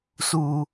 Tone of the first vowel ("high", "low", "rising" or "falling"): high